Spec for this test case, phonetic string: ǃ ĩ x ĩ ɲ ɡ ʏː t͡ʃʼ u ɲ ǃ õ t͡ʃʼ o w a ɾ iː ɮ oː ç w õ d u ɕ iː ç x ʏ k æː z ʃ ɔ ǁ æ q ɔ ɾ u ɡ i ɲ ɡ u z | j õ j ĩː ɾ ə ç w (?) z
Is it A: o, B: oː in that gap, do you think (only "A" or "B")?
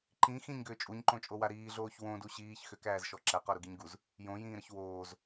B